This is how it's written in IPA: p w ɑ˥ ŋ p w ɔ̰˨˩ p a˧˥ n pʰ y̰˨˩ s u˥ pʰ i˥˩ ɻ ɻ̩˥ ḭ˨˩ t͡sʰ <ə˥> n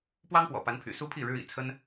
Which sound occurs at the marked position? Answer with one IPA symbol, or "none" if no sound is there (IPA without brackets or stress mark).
ə˥